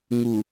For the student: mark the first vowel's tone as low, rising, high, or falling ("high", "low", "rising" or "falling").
low